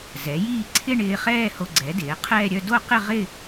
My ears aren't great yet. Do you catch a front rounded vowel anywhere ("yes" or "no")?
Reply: yes